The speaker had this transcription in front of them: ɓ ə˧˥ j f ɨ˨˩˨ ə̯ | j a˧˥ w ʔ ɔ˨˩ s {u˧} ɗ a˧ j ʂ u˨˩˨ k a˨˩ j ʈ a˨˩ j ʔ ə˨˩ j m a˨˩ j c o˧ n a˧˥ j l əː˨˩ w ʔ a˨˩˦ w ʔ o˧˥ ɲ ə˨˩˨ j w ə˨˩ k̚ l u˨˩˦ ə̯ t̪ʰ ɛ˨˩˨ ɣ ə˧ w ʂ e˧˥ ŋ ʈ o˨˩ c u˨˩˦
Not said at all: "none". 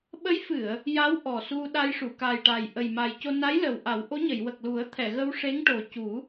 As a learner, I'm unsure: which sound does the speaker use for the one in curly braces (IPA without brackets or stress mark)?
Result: u˧